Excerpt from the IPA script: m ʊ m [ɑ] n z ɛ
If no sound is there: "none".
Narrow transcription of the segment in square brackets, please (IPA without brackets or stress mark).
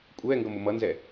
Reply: ʌ